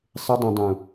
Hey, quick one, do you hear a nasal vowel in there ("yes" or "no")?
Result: yes